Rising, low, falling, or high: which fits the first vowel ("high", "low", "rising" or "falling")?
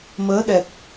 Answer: rising